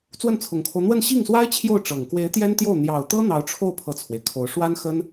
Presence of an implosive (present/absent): absent